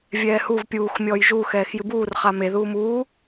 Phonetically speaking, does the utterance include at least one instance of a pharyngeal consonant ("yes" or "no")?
no